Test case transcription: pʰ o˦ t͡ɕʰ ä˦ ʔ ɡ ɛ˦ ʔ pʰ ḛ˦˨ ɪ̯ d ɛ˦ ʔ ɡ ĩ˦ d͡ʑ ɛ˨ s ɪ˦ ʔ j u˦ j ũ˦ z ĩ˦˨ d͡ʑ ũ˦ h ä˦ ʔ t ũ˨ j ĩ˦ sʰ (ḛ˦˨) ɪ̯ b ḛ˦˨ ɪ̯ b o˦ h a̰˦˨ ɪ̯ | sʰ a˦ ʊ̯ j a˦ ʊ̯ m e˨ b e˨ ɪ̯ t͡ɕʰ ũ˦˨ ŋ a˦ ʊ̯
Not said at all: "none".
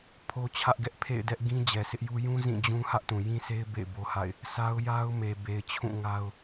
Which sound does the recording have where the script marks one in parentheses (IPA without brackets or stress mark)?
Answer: e˦